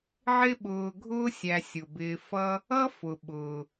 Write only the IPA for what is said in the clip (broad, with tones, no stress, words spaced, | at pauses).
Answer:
ʕɪ˦ɓʊː˨ɡʱʊː˦ sʲæ˨sʲʊ˩bɪː˨ fʌ˦ | ʌ˦ fʊ˩ ɓʊː˩